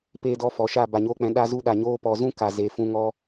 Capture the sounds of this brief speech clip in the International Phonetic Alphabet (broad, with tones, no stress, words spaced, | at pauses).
pe˧dɔ˧ fɔ˨ʃa˦˨ ba˨ɲoː˧k͡pɛ̃˨˦ ɗa˦zu˦ ɗa˨ɲoː˧pɔ˨zũ˦ ka˨ ze˨fũ˧ŋɔ˧